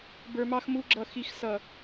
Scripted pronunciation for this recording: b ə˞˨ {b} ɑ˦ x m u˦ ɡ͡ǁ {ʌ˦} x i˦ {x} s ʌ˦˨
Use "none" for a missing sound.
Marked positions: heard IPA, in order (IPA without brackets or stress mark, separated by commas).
m, ʌ˦˨, x